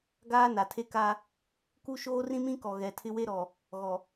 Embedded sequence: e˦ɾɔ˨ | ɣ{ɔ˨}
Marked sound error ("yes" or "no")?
no